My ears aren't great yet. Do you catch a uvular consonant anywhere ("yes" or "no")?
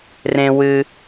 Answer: no